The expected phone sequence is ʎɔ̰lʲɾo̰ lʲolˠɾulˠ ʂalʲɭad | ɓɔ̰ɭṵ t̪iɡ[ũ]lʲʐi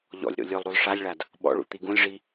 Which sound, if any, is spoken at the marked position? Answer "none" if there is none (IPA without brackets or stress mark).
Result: ũ